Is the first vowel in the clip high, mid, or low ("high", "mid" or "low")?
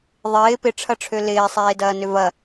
high